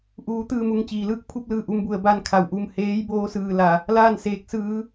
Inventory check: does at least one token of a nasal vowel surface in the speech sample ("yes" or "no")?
no